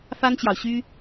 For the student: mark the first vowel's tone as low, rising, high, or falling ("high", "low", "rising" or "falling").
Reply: high